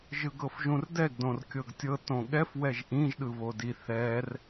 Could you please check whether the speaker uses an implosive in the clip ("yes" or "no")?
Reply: yes